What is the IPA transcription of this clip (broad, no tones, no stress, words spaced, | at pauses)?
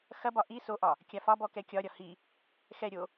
xɐbɒ ʔi soʔɒ | kʲafɒbɔ kɛkʲɒɾʲɒ hi | xɛɾʲo